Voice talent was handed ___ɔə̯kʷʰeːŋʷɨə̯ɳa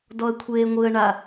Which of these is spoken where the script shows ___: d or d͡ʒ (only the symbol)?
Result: d